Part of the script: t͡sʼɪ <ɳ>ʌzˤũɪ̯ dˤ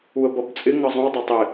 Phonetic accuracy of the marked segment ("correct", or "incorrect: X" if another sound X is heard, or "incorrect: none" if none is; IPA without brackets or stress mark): incorrect: ŋ